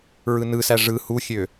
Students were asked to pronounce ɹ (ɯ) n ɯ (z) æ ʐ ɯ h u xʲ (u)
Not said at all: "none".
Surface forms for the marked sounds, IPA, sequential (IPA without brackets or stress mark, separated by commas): ɯ, s, ø